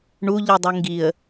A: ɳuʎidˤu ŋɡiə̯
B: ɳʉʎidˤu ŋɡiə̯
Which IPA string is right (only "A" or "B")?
A